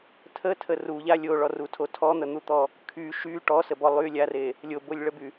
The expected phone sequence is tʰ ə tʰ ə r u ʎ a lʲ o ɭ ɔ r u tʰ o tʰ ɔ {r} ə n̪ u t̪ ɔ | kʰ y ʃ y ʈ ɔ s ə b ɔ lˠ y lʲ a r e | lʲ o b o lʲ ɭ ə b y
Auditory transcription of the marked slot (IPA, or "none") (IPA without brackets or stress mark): n̪